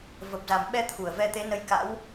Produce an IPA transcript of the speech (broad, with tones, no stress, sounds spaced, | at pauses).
v ə˨˩ p̚ z a˨˩ m ɓ ɛ˧ t̪ʰ u˧˩ ə̯ v ɛ˧ t̪ e˨˦ n ə˧ j k a̰˧˥ w